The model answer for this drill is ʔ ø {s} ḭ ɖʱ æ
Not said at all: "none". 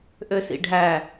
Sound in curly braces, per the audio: s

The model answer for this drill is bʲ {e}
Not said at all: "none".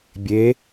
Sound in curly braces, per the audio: e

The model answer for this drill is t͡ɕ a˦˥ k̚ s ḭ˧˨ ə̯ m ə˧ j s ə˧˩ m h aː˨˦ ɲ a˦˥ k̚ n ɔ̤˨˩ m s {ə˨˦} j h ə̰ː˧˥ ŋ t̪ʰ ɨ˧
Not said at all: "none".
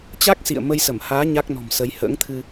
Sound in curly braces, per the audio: ə˨˦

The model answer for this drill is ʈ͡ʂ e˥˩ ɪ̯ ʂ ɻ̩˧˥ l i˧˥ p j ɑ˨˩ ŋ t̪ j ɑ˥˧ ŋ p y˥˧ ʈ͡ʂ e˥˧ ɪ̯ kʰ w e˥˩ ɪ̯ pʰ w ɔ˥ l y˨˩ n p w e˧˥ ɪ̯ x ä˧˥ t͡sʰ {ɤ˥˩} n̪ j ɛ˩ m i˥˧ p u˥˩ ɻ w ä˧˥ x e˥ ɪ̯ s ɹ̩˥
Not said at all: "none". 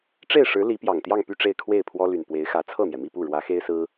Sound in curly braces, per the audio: ɤ˥˩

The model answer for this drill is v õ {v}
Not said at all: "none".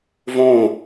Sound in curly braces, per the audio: none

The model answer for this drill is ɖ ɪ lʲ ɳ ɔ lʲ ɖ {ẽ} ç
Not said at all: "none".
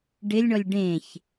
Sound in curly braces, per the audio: ẽ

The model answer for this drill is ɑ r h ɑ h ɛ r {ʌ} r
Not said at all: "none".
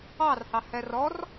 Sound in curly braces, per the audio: ɔ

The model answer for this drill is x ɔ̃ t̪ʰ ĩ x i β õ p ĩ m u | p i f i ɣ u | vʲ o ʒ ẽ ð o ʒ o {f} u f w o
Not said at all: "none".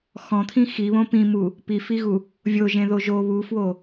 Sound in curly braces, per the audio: β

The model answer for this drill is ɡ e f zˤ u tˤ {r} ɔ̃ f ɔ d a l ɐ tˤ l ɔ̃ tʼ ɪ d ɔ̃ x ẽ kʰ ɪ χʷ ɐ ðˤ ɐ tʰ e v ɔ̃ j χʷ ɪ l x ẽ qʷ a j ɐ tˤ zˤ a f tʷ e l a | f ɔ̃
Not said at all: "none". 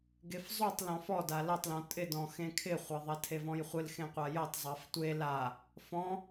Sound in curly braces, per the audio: l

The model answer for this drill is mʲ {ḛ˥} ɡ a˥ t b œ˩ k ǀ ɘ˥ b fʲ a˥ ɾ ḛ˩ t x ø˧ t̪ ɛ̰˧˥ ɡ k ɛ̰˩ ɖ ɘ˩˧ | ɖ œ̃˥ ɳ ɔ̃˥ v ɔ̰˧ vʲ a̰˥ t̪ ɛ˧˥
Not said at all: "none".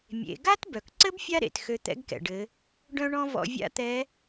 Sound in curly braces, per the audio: ḛ˩˧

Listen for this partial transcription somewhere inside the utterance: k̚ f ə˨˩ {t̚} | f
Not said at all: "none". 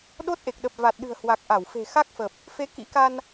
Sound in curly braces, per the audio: p̚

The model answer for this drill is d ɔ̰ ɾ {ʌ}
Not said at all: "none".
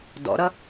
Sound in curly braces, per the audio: ʌ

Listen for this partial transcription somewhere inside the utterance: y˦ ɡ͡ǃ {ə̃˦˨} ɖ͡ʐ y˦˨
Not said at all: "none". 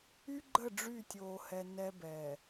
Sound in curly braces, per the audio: ə˦˨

